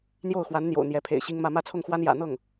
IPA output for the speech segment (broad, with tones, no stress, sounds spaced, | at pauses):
n̪ j o˥˩ ʊ̯ x w a˧˥ n n̪ j o̰˨˩ ʊ̯ n̪ j ɛ˧˥ pʰ ḛ˨˩ ɪ̯ ɕ i˥ ŋ m ä˥˧ m ä˥˧ t͡sʰ ʊ˥˩ ŋ x w a˥ n j ä̰˨˩ n̪ ɤ˥˩ ŋ